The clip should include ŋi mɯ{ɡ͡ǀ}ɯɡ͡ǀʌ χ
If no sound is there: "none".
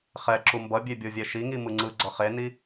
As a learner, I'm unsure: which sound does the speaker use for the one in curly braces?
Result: ŋ͡ǀ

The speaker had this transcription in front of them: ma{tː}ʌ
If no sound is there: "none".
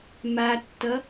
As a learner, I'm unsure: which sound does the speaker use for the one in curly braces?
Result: tː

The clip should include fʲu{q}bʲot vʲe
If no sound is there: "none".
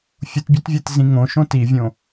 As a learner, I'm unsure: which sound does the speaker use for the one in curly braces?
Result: t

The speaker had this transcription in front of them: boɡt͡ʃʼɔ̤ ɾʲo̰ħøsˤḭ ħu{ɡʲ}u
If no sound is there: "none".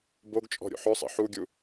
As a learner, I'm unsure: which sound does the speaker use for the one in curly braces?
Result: ɡʲ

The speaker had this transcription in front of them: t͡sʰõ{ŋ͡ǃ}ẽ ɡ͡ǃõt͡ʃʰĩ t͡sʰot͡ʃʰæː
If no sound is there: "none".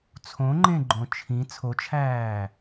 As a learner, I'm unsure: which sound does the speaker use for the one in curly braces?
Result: ŋ͡ǃ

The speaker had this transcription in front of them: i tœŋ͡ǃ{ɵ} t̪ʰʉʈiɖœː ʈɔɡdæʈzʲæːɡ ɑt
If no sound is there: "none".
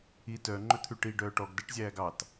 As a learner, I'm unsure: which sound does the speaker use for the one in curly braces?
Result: ɵ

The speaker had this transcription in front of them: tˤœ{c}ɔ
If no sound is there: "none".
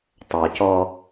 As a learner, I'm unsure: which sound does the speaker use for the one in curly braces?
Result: c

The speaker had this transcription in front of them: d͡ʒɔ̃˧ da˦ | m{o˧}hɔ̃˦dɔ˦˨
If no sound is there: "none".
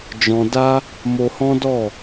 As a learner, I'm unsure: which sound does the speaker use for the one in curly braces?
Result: o˧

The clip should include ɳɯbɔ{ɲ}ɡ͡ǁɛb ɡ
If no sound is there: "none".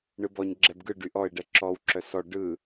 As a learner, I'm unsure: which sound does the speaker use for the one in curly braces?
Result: ɲ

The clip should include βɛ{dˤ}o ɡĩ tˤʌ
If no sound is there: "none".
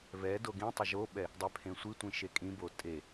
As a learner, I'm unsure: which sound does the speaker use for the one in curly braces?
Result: d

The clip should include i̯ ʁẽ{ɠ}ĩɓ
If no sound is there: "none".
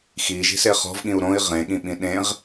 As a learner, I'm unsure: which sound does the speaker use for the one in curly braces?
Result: ɠ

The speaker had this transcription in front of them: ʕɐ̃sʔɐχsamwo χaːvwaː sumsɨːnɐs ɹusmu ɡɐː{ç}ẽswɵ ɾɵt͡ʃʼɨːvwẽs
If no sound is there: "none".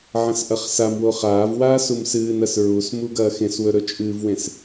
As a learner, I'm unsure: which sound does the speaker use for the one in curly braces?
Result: x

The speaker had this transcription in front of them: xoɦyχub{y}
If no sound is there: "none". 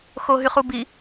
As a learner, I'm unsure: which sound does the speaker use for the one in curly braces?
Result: i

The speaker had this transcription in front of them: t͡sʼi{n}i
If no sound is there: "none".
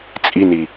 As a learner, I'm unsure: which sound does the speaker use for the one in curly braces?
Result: n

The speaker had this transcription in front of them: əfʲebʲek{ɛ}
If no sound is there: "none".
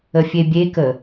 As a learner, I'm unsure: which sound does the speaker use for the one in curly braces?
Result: ə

